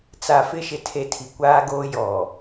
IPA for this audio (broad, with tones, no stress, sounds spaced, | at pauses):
t͡s a˨ f ɪ˦ ʃ ɪ˨ tʰ e˨ tʰ i˨ kʷ aː˦ ɡ oː˦ j ɔ˨